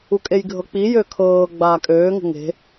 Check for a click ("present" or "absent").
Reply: absent